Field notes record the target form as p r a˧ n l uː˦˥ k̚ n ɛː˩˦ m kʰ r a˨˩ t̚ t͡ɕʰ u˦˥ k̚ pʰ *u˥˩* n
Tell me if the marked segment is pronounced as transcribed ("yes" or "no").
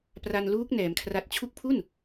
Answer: yes